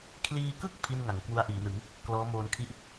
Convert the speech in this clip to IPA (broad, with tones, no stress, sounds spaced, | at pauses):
kʰ l iː˧ k ɯ˥˩ k̚ pʰ i˥˩ n ŋ a˩˦ ŋ k w u˦˥ a̯ ʔ iː˩˦ n ɯ˩˦ ŋ | k l ɔː˦˥ m oː˧ n kʰ i˥˩ ʔ